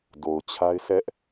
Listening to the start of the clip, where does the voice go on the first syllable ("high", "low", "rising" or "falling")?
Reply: low